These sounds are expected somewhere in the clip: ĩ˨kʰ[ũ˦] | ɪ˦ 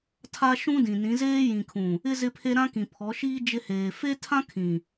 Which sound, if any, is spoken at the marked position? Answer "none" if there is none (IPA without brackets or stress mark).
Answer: ũ˨